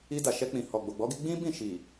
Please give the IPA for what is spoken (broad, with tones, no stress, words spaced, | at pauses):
i˧da˨ʃɛ˧k͡pĩ˨ hɔ˨ɡ͡bo˨ɡ͡bɔ˨˦ɡi˧ ɡ͡bĩ˦bĩ˦˨ ʃi˨